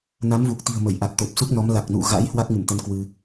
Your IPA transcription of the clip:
n a˨˦ m v u˨˩ k̚ t̪ i̤˨˩ ə̯ m ə˧˩ j ʔ a˨˩ t̚ t̪ o˨˩ p̚ s u˦˥ k̚ n ɔ˨˦ m l a˨˩ k̚ n ṵ˧˨ ɣ a̰˧˥ j h w a˦˥ k̚ ŋ ɨ˧˩ m t̪ ə˧ n k w ɨ˧

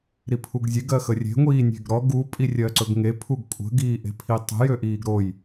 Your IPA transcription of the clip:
ɾ i pʰ u ɡ zʲ e ɡ ɜ x ə rʲ e̤ ŋʷ iː nʲ e̤ ɡ ɾ ɔ ɡ u pʼ i rʲ ɜ ǀ ɵ ɡ ŋ e pʰ u ɡ kʷʼ ə̤ ɡ iː ʔ e̤ pʰ i tˤ ə̤ j ø ʔ iː ɡ ɾ o j

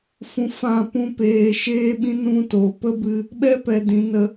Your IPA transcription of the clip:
f ũ˧ f ã˦˨ p ũ˦ p eː˧ ʃ eː˦ ɓ ĩ˦ n ũ˦ t o˨ p ə˦ b ɨ˧ | ɓ ɛ˦ p ɛ˧ d ĩ˨˦ n ə˧

